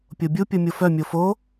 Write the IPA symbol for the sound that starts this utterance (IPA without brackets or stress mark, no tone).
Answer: pʲ